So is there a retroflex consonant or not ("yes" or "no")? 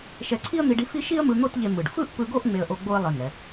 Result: yes